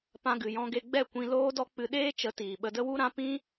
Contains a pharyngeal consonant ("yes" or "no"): no